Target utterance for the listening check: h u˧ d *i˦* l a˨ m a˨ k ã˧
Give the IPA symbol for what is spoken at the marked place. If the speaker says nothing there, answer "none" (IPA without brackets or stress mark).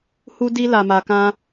i˧